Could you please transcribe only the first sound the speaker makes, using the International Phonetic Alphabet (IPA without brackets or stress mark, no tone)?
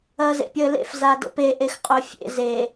ɐː